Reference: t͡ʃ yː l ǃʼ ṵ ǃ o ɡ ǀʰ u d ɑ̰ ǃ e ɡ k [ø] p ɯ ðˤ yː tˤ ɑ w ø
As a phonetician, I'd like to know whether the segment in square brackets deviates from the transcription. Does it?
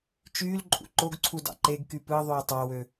yes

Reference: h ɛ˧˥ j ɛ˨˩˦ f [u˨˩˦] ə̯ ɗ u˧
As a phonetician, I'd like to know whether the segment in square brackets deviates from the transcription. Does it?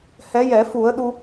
no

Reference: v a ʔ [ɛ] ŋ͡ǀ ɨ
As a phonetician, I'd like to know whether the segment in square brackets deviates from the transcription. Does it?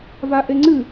yes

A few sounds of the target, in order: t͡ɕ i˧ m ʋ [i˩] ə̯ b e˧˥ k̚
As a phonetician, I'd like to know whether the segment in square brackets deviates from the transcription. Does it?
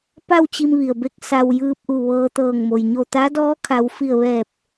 no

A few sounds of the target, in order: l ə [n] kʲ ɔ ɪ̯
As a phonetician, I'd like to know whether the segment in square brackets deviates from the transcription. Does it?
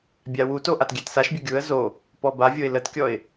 yes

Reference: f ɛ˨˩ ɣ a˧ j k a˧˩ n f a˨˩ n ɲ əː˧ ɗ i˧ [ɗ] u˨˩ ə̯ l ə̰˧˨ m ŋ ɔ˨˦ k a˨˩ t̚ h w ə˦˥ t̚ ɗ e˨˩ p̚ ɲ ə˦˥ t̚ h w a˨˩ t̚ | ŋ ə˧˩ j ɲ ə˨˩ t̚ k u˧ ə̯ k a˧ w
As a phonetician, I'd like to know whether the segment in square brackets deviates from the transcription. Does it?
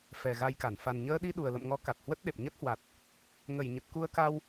no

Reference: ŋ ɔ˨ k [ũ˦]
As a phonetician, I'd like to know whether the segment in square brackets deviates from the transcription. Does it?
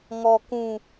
yes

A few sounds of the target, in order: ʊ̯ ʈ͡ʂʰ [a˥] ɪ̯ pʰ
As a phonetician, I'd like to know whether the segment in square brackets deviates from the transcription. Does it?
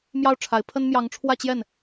yes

